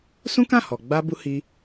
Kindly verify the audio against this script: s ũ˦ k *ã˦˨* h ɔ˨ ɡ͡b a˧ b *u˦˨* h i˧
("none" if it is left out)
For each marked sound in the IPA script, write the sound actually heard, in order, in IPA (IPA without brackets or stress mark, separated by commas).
ã˦˨, u˦